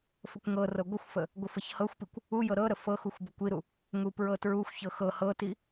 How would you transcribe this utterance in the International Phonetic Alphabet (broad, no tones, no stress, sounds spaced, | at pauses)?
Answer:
f ə kʷ ŋ ɤ r ɤ ɡʷ ə xʷ f ə | ɡʷ ə f ɤ ç h ɤ xʷ p i kʷ | u j ɤ ɾ ɤ ɾ ə f ɤ x u xʷ b ə kʷ i ɾ u | ŋ u p ɹ ɤ t ɹ u xʷ ç ɤ x ɤ h ɤ t i